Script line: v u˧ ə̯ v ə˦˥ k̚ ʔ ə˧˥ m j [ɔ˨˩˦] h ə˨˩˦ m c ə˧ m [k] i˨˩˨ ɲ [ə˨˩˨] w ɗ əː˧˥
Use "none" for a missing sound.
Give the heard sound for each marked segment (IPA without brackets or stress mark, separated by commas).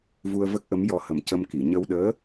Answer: ɔ˧, k, ə˧